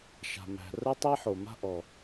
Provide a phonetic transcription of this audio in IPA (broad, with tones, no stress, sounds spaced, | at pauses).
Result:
ʃ a̤˩ m æ̤˩ r ə˥ tˤ i˥ ħ o˩ m a̤˥ ʔ ɔ˩